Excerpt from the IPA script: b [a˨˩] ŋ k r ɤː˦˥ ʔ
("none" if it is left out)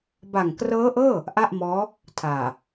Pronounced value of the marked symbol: a˨˩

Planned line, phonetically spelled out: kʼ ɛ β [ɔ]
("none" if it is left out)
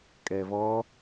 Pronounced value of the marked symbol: ɔ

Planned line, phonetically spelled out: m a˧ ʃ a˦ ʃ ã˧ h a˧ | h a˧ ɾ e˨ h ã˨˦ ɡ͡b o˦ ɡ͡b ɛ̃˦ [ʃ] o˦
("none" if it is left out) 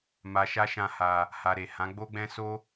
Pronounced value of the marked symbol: s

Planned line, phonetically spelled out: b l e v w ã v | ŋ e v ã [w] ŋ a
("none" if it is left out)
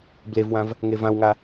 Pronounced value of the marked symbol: w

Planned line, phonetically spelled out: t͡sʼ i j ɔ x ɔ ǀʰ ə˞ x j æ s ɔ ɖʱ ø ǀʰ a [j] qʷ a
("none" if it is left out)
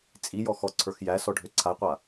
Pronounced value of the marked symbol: j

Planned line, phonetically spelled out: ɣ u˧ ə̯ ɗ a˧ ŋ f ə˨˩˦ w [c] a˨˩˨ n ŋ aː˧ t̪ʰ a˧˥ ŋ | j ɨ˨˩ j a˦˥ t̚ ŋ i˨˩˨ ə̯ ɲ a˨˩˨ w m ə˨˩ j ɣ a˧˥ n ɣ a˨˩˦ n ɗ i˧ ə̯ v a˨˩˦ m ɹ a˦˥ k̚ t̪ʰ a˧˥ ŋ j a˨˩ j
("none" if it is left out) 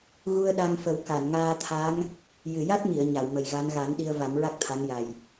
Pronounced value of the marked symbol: k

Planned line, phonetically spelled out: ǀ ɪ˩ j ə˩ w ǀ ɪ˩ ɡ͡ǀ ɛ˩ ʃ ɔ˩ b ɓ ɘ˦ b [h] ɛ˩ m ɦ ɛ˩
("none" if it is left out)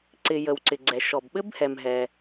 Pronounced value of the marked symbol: h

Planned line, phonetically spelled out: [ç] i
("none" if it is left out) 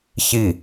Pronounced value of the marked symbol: ç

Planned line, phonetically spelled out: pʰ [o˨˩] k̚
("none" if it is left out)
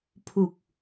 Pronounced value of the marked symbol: u˨˩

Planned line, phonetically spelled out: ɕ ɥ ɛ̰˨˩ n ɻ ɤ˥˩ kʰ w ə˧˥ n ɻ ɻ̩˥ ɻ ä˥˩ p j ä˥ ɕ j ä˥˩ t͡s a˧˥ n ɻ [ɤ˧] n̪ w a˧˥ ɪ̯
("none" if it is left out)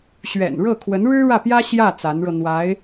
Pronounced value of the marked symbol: ɤ˧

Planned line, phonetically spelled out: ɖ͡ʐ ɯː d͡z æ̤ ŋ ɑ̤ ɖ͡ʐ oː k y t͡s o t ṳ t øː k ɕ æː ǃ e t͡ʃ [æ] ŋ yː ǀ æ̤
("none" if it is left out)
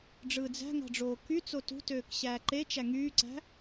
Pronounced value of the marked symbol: æ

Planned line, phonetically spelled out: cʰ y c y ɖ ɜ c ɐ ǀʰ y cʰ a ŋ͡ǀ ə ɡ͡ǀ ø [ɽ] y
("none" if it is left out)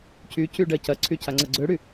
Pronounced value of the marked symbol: ɽ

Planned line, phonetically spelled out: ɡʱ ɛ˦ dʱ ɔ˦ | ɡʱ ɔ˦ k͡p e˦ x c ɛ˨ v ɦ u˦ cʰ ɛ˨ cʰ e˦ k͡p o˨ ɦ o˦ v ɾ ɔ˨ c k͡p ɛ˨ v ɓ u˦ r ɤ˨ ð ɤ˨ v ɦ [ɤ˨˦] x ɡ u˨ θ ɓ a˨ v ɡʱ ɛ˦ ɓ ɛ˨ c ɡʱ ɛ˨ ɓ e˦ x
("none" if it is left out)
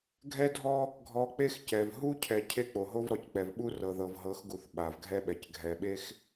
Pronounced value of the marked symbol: ɤ˨˦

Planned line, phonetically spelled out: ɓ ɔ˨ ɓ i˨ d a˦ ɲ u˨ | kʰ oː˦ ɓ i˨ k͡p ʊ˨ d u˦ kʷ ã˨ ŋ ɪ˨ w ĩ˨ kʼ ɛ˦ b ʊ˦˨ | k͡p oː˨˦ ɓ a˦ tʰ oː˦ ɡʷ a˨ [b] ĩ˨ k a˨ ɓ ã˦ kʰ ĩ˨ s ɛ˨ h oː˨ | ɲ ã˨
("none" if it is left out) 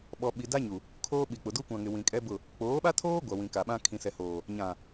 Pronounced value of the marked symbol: w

